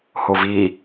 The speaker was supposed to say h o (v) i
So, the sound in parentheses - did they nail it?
yes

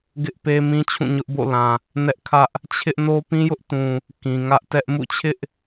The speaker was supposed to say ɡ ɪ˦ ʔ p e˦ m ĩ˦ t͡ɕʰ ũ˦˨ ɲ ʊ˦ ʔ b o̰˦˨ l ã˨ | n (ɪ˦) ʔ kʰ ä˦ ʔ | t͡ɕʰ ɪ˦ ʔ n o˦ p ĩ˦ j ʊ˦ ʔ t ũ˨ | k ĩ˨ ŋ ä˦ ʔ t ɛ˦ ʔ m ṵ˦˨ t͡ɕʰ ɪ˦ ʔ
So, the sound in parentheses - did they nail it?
no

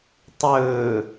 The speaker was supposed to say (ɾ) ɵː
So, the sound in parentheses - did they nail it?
no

